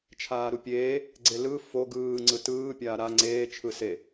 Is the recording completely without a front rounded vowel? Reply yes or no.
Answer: yes